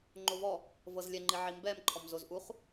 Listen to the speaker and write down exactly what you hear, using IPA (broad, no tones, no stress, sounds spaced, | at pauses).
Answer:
ŋ͡ǃ o v ɔ | v ɤ z lʲ ɛ ŋ͡ǃ i ʕ i m b ɛ m ǃʰ ɔ m z o z ʔ u χ